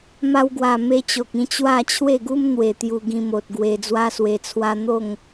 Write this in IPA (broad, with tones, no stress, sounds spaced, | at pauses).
m a˧ w ɡ w a˨˩ m e˧ t͡ɕ o˨ k̚ ĩ˧ t͡ɕ w a˥˧ t͡ɕʰ w e˥˧ ɡ u˦ m n̪ w e˨˩ t̪ j u˧ ɡ ĩ˧ m o˨ t̚ ɡ w e˧ d͡z w a˦ s w e˧ t͡sʰ w a˦ n̪ o˥˧ ŋ